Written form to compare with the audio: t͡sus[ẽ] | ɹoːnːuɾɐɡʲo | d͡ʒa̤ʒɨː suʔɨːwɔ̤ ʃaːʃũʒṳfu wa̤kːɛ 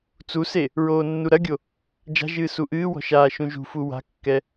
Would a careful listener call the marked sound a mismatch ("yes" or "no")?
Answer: yes